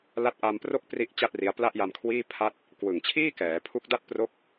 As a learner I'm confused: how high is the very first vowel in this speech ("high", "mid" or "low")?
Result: low